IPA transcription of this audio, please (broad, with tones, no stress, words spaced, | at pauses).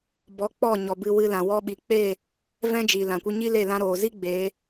bɔ˨˦k͡pɔ˦˨ɲɔ˨ bɨ˧wɨ˧ lã˨wɔ˧ɓi˨k͡peː˦˨ | vɛ̃˦d͡ʒi˨ lã˨kʷi˧ɲi˦le˦˨ lã˧ɾoː˨zi˦ ɡ͡beː˨˦